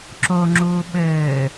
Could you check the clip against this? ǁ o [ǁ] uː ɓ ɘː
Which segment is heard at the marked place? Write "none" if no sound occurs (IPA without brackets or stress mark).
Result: ŋ͡ǁ